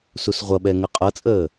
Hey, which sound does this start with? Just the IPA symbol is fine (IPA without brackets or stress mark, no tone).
s